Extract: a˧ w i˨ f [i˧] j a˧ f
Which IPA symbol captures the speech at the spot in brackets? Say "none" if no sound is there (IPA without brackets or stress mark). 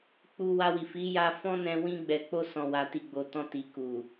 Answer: i˨˦